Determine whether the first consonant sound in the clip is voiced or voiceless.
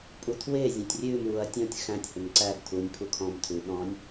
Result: voiceless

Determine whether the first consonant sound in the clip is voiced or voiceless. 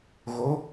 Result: voiced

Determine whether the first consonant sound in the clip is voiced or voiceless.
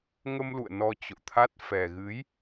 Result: voiced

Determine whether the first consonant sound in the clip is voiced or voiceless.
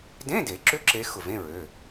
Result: voiced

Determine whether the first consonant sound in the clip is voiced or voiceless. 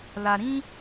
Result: voiced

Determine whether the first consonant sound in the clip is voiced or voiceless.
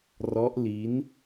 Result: voiced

